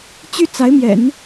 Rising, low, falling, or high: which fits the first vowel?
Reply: high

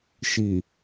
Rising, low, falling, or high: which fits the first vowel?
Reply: low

